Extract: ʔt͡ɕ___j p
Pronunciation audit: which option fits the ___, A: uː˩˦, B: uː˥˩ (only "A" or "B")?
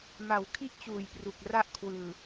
A